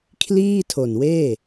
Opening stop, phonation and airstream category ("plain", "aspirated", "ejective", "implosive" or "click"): aspirated